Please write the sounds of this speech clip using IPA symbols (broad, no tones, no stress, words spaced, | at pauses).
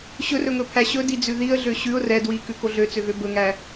ɕɵrɵŋɵpʰæ ɕɵdid͡zʉ ðiə̯ɮø ɕʉʊ̯ rɛ dwikʉko ɮøt͡søɣø bɵŋæ